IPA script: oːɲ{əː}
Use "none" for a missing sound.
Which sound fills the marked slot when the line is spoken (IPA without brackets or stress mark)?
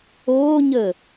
əː